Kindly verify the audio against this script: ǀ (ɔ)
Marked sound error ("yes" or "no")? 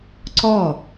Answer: no